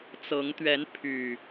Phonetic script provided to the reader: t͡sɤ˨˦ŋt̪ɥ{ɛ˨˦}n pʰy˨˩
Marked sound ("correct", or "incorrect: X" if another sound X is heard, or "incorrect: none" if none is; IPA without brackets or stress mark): correct